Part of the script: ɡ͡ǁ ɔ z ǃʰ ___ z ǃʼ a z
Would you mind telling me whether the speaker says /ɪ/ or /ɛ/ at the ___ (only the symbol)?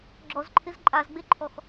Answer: ɪ